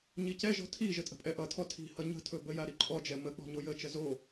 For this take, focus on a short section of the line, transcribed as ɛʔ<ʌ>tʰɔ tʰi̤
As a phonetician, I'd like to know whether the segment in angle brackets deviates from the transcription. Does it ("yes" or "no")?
no